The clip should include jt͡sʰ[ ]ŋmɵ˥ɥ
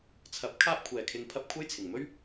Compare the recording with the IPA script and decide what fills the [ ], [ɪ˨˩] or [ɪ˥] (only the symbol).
ɪ˨˩